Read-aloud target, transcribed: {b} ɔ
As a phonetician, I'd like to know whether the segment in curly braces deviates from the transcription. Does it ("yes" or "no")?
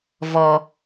yes